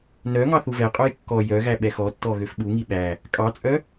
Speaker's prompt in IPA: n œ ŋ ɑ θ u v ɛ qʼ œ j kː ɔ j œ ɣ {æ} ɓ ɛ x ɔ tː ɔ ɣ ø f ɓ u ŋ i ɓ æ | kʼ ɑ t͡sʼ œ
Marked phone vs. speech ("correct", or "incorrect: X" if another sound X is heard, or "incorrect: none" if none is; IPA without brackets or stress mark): correct